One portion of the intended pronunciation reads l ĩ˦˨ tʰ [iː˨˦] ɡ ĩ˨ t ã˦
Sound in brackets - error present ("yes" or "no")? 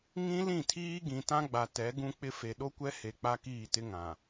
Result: yes